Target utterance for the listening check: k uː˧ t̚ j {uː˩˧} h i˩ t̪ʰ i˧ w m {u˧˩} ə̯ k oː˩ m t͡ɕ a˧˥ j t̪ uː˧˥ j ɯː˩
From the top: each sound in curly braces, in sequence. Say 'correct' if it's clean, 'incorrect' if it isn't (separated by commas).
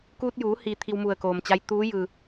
correct, correct